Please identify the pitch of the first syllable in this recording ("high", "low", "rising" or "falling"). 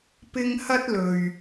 high